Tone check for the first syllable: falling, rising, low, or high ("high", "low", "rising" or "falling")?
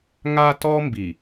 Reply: high